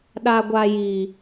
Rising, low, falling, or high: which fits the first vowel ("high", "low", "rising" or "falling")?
high